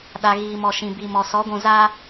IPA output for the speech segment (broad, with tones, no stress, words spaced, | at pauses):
ɗa˨ɣiː˨mɔ˨ ʃĩ˨bi˨mɔ˨ sɔ˨˦ɡʷũ˨za˦